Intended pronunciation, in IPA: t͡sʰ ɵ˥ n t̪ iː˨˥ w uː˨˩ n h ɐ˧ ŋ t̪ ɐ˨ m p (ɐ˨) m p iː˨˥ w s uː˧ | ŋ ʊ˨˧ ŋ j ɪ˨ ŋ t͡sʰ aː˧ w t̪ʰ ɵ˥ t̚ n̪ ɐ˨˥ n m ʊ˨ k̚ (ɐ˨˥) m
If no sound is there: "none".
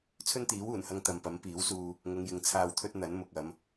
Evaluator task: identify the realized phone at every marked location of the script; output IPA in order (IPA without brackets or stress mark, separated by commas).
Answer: ɐ˨˥, ɐ˨˧